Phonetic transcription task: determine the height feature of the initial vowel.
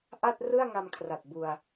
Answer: low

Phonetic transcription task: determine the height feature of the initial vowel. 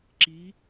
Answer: high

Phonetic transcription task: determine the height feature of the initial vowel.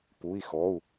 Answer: high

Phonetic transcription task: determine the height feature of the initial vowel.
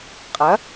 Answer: low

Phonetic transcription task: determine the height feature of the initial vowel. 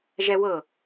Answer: mid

